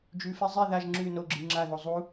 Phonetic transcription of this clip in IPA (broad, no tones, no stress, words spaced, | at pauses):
d͡ʒʉfe zˤi ðaʒ ŋ͡ǁʉ noɡ͡ǁɨ ŋ͡ǁaðo zˤu